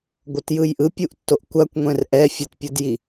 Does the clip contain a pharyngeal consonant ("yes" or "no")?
no